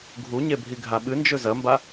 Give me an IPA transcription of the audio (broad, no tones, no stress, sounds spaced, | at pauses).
ɡʱ u ɲ e bʱ i ɡʱ a ɓ ɨ n d͡ʒ ɵ z ɐ m b a